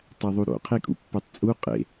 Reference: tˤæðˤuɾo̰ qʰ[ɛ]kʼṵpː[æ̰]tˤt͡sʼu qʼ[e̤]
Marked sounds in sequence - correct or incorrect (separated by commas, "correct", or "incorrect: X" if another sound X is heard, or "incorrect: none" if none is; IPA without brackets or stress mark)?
incorrect: e, incorrect: æ, incorrect: ḛ